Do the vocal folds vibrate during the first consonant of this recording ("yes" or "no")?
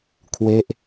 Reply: no